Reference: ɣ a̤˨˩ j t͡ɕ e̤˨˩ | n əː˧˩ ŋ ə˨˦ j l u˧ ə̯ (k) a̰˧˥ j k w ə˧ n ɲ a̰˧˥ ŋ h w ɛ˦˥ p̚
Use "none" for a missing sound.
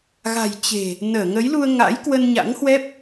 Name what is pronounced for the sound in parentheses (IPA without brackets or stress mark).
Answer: ŋ